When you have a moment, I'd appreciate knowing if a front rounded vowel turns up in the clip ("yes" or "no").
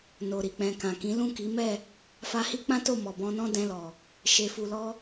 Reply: no